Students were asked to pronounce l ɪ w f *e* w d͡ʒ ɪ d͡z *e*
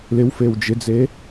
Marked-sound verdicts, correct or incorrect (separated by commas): correct, correct